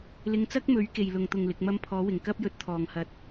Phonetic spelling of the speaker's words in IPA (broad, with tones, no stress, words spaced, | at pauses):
lɪ˧ŋt͡sɐ˥k̚mɵ˨˥ɥ ke˨jlʊ˨ŋt̪ʊ˨ŋ lɪ˨˥k̚mɐ˥m pʰɔː˨˥wɪ˨˩ŋ kɐ˥p̚jɵ˨˥t̚t̪ʰɔː˨˩ŋhɐ˨˥t̚